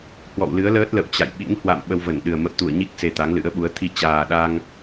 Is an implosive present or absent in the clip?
present